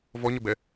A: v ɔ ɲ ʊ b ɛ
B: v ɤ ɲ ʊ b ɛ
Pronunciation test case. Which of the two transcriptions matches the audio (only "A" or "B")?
A